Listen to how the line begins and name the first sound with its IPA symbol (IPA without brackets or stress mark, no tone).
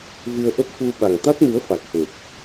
v